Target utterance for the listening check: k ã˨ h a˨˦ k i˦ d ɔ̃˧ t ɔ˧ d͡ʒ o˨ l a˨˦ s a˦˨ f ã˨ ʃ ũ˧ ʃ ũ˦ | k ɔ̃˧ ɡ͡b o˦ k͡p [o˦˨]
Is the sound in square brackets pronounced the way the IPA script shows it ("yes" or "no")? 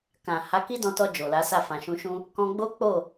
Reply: yes